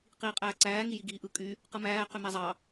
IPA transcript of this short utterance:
qiːqʼæːǀæː ŋijiɡiːʔɯ kʼy | qɯmæː qymæzˤɑ

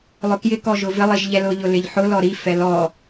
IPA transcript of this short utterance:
lˠʊkjɪ kɔʒʊvɪ lˠiʒʎɛlʊ ʎʊlɪʎħʊ lɔɾi fɛlɔ

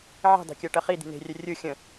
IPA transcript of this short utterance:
ʕi̤dˤe̤kʲɜ ʈɜχid̪i̤ ne̤rʲɵ rʲɯ xʲə̃

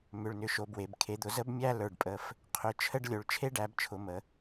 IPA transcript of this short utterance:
mʏ˩˧˩ɭnʏ˩˧˩ ʃo˩˧bwe˩˧b kʰe˩˧d̪ʊ˩˧ zə˦bmʲæ˦ lə˞˩˧˩ɖpʼə˩˧˩f | qʰʏ˩˧˩ t͡ʃʰə˦ɖ lʲo˩˧ɭt͡ʃʰe˦ɖæ˩˧bt͡ʃʰʊ˩˧ mə˩˧

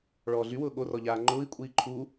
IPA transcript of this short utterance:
ɭɔːɮywʊː ɠorɔ ʎaːŋ͡ǃʊːi̯kʷʼiː ǃʰu

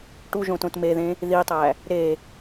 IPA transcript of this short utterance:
ʈuʒõtõt meðẽ | ðitˤæ | ɾe

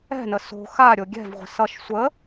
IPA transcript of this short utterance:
ɛ̤nə so̤ xa ɾʲoɡʲɛ̤vʁʷə̤ sʌʃ sʷə

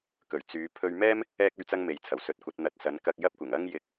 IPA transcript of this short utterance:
kɵ˨˩ɥ t͡syː˨˧ pʰɵ˧ɥmɛː˥m | ɛː˥k̚ ɵ˥ɥt͡sɐ˥ŋme˨jt͡sʰɐ˨˩w sɵ˨˥t̚kʷɐ˨˥t̚n̪ɐ˧t̚sɐ˨˥n kɐ˧k̚jɐ˥p̚ kʷɪ˨˩ŋɐ˥ŋ jɪ˧k̚

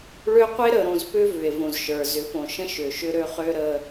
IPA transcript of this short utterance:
ɭø˦ qʷe˦ ɾə˨ɾõ˨zpʏ˦ vʏ˨e̯võ˨zʃə˞˨ zʏ˨˦põ˨ʃə̃˦ ʃʏ˨ʃʏ˦ɾø˦χø˦ ɾə˦

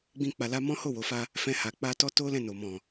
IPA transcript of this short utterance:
ɡ͡bĩ˦k͡pa˧la˦ mɔ̃˦ ho˦˨wo˨fa˧ | fɛ̃˧ha˨ k͡pa˧tɔ˦to˦ lɛ̃˦˨no˨mɔ̃˨

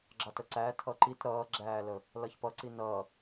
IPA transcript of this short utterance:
ɡ͡ǁɑtəǀæ tʰʌǃit ɾʌːɡ͡ǁæːlə | lʌçpʌǀi nʌ

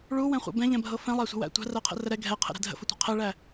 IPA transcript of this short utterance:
ɭuwɛ̃χʷɛ̰ bɛ̃ʎɛ̃bʱɤ fɛ̃lˠæsʷə̤wæ̰ tʷæ̤rɜqʰə̰rə ɾɛ ɡʱɛqʰə̰ɾɛ̤ dʱə̰fətʷɛ̤ qʰɛɭæ

